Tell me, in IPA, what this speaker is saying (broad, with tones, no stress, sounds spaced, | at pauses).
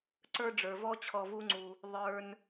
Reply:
ǀ ə˞˦ ɖ͡ʐ ə˞˨ v ɔ˦ t͡ɕʰ ɔ˨ v u˧ ŋ͡ǀ u˨ | ðˤ ə˞˧ n